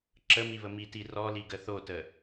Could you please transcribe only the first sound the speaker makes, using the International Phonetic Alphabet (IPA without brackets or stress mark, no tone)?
ǁ